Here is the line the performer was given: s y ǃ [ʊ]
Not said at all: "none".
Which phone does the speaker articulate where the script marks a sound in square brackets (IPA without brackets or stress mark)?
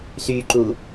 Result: u